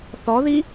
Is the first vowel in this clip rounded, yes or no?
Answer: yes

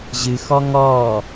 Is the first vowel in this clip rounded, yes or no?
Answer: no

